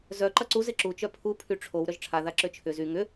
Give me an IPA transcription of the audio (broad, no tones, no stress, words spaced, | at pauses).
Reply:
zœ ǃɐǀuz ɪǁu t͡ʃœpʰu pʰyʈ͡ʂʰow ɾœʒʈ͡ʂʰa ðaǁøt͡ʃʰʏ zy ŋʏ